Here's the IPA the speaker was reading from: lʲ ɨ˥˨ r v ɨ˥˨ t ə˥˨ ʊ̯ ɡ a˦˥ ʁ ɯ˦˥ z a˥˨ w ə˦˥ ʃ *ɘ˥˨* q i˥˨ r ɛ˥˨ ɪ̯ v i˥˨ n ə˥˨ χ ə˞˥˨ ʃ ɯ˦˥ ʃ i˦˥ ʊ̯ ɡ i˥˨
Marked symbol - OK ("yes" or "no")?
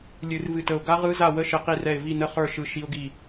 yes